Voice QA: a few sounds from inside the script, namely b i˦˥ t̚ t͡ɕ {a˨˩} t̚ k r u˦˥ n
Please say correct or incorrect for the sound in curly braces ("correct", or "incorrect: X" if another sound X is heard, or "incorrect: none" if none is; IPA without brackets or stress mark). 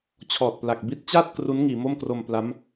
incorrect: a˥˩